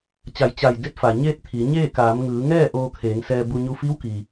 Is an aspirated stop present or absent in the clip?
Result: present